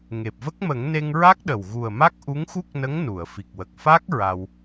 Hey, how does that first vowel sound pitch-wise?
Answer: low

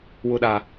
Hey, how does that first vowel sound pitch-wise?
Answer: low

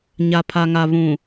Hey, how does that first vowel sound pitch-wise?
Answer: low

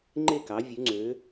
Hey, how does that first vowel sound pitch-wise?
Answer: falling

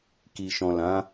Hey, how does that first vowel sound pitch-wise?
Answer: low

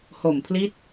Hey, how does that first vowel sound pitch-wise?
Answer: low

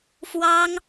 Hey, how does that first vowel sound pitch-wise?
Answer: high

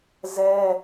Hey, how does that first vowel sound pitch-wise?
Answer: high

